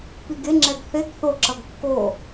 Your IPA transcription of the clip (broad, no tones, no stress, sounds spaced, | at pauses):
p i ɡ e ŋ͡ǁ ɛ ɡ θ e ɡ θ o ǁ ʌ ɡ kː o